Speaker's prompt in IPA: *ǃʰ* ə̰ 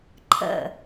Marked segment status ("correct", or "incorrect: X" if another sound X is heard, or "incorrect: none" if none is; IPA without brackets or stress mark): correct